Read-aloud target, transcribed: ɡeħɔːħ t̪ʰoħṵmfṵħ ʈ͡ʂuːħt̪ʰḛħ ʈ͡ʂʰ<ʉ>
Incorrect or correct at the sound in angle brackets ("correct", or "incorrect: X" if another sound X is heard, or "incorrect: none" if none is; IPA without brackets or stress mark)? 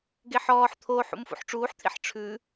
correct